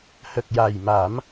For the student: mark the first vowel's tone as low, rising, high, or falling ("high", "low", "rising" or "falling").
low